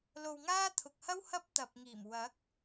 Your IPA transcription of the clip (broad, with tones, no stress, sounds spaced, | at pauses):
l o˧ w ŋ aː˥ t̪ʰ ʊ˨ k̚ h ɐ˥ w h ɐ˥ p̚ t̪ ɐ˨ p̚ ŋ iː˨˩ m w ɐ˨˥ k̚